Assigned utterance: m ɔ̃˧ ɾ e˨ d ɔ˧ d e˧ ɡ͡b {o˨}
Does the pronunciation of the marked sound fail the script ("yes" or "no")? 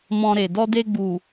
yes